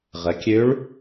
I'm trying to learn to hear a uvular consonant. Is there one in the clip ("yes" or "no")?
yes